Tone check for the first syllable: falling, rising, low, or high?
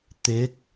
rising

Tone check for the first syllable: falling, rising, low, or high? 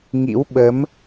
rising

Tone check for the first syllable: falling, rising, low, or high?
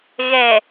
low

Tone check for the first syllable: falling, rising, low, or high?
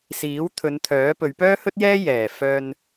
rising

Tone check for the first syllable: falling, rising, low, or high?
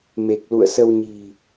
low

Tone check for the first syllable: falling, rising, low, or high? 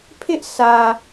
high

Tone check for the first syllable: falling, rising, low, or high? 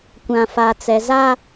low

